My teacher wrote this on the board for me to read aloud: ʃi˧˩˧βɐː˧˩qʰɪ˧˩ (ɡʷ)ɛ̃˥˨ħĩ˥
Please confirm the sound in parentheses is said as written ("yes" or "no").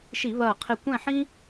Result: no